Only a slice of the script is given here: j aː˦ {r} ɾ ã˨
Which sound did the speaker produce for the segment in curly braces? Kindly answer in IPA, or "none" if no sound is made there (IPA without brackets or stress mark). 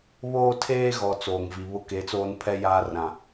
r